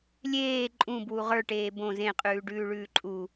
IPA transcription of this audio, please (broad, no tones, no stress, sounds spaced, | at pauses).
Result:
lʲ eː ǃʼ ũ b w u ʁ ə˞ ʈ eː b õ z ẽ qʼ ʉː ɖ ʉː ɭ ʉː ǃʼ u